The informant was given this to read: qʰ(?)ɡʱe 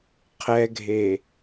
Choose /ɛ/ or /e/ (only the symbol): ɛ